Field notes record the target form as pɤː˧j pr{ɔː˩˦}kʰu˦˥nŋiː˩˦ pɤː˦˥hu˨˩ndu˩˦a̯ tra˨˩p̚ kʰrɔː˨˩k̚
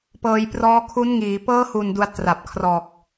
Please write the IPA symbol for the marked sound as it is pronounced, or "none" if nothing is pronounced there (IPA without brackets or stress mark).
ɔː˦˥